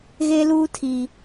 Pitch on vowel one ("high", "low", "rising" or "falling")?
high